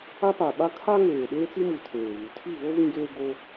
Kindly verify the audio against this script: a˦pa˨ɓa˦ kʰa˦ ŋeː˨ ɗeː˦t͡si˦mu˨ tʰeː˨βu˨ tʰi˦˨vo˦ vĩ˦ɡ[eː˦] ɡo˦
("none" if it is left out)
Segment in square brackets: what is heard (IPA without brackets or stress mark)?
eː˦